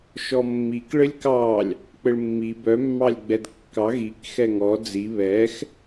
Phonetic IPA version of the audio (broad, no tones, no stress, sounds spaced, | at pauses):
ʃ ɔ mː i k ɭ ɘ lʲ k ɑ lʲ | k͡p ɘ ɭ mː i b œ mː ɑ lʲ ɡ͡b ɛ d kː ɑ ɣ i k x ɛ ŋ ɔ d͡z i β ɛ x